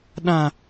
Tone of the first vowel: low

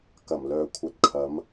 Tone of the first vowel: low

